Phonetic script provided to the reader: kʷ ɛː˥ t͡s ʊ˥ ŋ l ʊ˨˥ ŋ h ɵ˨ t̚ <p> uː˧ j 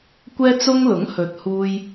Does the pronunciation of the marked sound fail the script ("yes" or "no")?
yes